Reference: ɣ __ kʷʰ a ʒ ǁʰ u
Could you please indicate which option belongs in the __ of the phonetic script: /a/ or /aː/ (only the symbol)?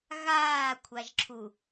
aː